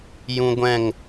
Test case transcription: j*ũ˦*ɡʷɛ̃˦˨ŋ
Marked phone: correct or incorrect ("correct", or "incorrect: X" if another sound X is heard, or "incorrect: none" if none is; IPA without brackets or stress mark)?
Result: correct